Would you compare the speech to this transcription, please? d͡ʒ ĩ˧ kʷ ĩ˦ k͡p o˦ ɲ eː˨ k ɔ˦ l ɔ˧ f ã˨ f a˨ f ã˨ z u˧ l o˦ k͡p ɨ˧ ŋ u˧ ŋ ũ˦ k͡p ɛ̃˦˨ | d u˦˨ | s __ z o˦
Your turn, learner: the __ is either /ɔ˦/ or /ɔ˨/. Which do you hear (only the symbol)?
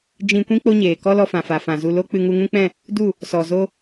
ɔ˨